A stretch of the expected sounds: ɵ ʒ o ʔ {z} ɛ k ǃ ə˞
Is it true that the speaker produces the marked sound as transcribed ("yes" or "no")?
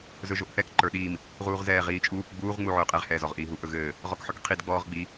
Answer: no